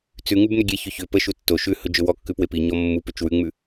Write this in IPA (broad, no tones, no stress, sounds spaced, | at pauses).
t͡s ʉ ŋ ʉ b n ʏ ɡʲ e ç ʏ ç ʏ p ə ʃ u tː o ʃ ʉ h ɵ d͡ʒ ɵ w ɔ kː ʉ p w e p i ɲ ɔ mː u p ʏ t͡ʃ w ʉ ŋ͡m ʉ